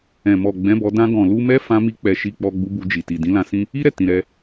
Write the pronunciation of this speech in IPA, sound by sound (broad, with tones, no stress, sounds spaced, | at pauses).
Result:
ɛ̃˨ m ɔ˨ ɡ͡b ɛ̃˨˦ b ɔ˧ d ã˧ ɡ ɔ̃˨ l u˧ m ɛ˦ f ã˦ m i˦ k͡p ɛ˧ ʃ i˧ k͡p ɔ˧ ɡ͡b u˧ b u˧ d͡ʒ i˨ t i˨ d ĩ˨˦ l ã˧ s ĩ˦ | i˦ ɾ ɛ˦˨ t ĩ˨ ɾ ɛ˧